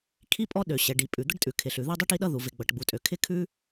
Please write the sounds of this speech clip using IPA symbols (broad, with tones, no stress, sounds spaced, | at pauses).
kʰ i˥ pʼ ɔ˥ ɗ ø˩ ɕ ɛ˩ ɖ i˩ pʼ ʉ˩ d̪ ə˥ ɖ tʼ ʉ˩ kʰ ɪ˩ ɬ ʉ˩ ð i˥ dˤ i˥ ʈ i˥ ɗ ʌ˥ ð u˩ v ɪ˩ ɡ͡b ʌ˩ ʈ ɡ͡b u˩ tʼ ø˩ kʰ ɪ˥ kʰ ʉ˥